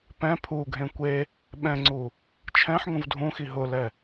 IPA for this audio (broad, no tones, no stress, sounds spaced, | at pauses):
p ɛ̃ pʰ u ɡʱ ẽ kʷ e | ɓ ɛ̃ ŋ͡ǀ u | t͡ʃʰ ɛ̃ ħ ŋ ũ v dʱ ũ x i ɦ ʊ l ɛ